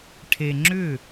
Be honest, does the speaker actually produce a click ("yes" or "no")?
yes